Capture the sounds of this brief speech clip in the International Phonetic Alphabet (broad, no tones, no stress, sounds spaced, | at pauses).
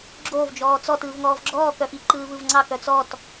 ɡ͡ǁ o v d͡ʒ ɔː t͡s ɔ t ɯː v ŋ ɔː v ɡ͡ǁ ɔː k œ f i ǃ ɯː v ɯ v ŋ͡ǀ ɑ k œ t͡s ɔ t